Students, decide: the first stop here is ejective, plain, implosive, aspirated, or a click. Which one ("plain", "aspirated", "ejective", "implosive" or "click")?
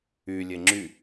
click